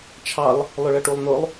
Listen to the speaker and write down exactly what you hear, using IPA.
t͡ʃʰ ɑ lˠ | lˠ ʊ ɭ ʌ ʈ u lˠ n ʊ lˠ

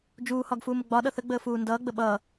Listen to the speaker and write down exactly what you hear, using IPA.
d͡ʒ uː h ɒ ɡ f uː m ə ɡ͡b ɒ ɗ ʌ θ ə ɡ͡b əː f uː n d ʌː ɡ͡b ə ɓ ʌː

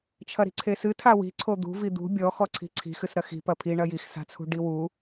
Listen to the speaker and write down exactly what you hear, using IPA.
t͡ʃʰ ɐ ɾ i̤ ǀʰ e s ɨ tʰ a w i̤ ǀʰ o d̪ ṳ v i d̪ ṳ bʲ ɔ x ɔ ǀʰ i̤ ǀʰ i̤ x ɨ s ɾ ɐ x i̤ p ɐ pʰ i ɳ ɐ j i x s a̤ t͡sʰ ṳ ɖ i w u

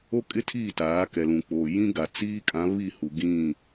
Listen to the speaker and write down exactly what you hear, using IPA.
o˦ kʼ ɪ˦ tʰ iː˦˨ t aː˨˦ k ɛ˨ l ũ˨ k͡p oː˨ j ĩ˦ ɡ a˨ t͡s iː˦ kʼ ã˨˦ β i˦˨ h u˨ ɡ ĩ˦˨

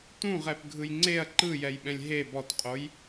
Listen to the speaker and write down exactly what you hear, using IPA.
t ũ ʁ ɛ p ɡʱ ɯ j ŋ͡ǀ e ɐ̯ ǃ ɯ j ɛ j ɓ ɛ̃ lʲ ɦ e b ɔ t qʼ o j

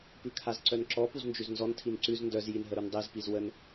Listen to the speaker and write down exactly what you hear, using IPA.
p ʉ kʰ a z ǀ œ n ǁ ɔ p u z n d͡ʒ ʉ z n z ɔ n tʰ i n ǀ ʉ z n d œ z j i n ɦ ə ɾ u n dˤ e z p i z w ə n

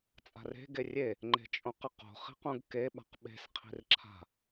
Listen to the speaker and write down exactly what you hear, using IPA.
t͡sʼ a̤ r e̤ ɡ e rʲ e | ŋ͡ǃ e̤ t͡ʃʼ õ q ɨ q o̤ χ i̤ q ũ ɡ k e ɓ a̤ q ɓ e̤ s qʰ i̤ r ǁʰ a̤

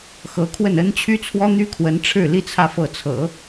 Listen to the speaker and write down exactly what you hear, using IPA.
x ɤ˧˥ kʰ w ə˥˩ n ə˥ n t͡ɕʰ y˥ t͡sʰ w ɔ˥ n̪ y˥ kʰ w ə˧˥ n ʈ͡ʂʰ ɻ̩˥˩ l i˥ t͡sʰ ä˥˧ f ɤ˥˩ t͡sʰ ɤ̰˨˩˦

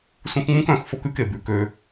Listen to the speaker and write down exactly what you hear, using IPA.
s ũ˧ x ŋ͡m ũ˦ k œ̃˦˨ x f o˦ k ʉ˦ k e˨ b ʉ˨ k ø˧

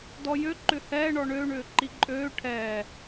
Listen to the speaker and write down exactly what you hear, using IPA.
d ɔ j ø ǃ ʏ h ɛː ɳ ɔ ɳ ø ɳ ʏː ǃ i ǃʼ øː ʈʰ ɛː

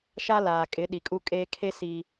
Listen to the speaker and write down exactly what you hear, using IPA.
ʃ a˦ l aː˨ kʼ ɪ˨˦ ɗ i˨ kʼ u˦ kʼ eː˦ kʰ e˦ s iː˦

